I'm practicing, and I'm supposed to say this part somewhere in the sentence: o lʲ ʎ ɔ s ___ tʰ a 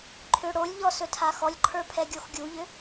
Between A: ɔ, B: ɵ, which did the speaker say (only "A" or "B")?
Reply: B